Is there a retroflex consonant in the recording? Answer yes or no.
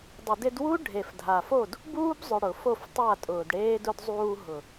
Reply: yes